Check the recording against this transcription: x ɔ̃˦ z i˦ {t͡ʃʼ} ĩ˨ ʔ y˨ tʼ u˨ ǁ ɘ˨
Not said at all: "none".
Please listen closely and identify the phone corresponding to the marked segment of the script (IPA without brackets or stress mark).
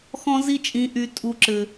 t͡ʃʼ